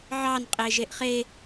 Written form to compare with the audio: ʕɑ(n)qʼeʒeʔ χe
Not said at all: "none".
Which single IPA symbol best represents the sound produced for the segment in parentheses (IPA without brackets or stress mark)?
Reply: n